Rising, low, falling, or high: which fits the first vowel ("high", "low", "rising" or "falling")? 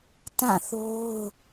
falling